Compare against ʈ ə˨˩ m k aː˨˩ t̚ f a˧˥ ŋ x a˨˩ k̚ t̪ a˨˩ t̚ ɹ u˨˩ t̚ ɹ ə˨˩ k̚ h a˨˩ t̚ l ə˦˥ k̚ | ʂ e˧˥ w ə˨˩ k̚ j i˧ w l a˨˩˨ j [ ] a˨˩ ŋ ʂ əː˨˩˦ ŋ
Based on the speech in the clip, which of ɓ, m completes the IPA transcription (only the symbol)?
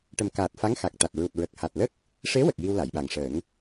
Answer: ɓ